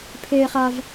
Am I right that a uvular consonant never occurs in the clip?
no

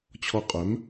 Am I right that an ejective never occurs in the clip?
no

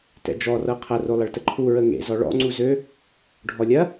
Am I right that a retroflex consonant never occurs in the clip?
no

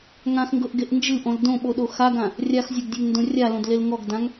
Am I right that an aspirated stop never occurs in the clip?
yes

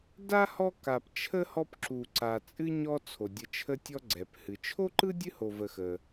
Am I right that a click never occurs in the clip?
no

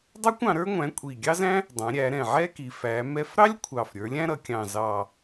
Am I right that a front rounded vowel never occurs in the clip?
yes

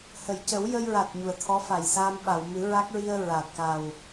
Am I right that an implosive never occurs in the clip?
no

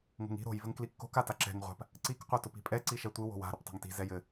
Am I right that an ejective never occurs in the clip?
no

